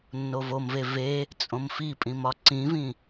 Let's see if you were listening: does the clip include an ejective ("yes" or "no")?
yes